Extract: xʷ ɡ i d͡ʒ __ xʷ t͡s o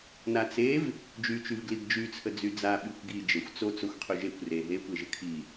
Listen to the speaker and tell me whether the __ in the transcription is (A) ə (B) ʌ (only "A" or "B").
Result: A